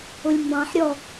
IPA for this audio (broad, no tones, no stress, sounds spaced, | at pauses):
ʊ lʲ m b ɑ̃ ħ ɾʲ ɔ